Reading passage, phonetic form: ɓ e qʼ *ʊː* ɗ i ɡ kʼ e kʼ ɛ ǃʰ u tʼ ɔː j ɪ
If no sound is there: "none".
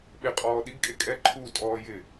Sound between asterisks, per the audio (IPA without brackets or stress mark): ɔː